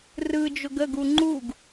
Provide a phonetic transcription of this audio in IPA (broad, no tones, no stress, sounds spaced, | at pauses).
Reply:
r ɯ d͡ʒ ʊ ɡ ə ɡ u ŋ͡ǃ u ɡ